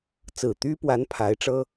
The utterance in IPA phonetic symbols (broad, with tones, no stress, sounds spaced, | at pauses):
t͡s ɹ̩˨˩ t̪ y˥ p w a˧˥ n pʰ a˧˥ ɪ̯ ʈ͡ʂ ɤ˥